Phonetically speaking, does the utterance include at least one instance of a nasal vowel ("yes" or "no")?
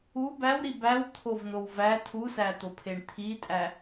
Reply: no